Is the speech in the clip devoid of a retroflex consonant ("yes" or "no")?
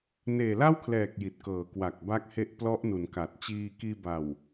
yes